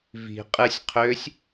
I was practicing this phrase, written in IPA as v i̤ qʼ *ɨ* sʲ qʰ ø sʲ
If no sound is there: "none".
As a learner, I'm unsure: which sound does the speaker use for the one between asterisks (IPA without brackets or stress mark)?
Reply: ɨ